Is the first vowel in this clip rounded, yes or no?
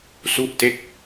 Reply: yes